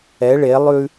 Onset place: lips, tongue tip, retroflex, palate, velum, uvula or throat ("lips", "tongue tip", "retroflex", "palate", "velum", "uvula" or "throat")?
retroflex